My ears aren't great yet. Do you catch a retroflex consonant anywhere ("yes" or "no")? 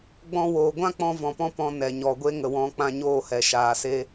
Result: no